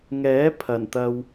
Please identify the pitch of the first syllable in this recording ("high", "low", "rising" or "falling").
rising